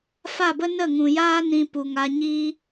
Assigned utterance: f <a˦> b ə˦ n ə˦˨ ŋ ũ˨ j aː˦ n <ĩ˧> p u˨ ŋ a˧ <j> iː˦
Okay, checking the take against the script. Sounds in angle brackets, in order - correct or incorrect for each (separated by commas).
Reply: incorrect, correct, incorrect